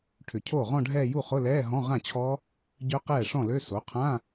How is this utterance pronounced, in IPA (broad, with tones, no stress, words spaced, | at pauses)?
ʈʰʏ˨˩˦cʰoː˥˩ʁɔ̃˥˧ɖʱɛː˥˧ ju˥˩χʊ˧˥˧lɛː˧˥˧ ɦɔ̃˧˥˧ʁã˥˩t͡ɕʰɔ˦˥ | ɟœ˦˥qɛː˥˩ ʂɔ̃˥˩lø˧˥˧ so˩˥qʰã˧˥˧